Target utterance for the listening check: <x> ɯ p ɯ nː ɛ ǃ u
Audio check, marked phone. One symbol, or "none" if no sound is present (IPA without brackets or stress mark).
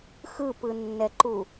x